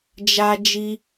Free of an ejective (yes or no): yes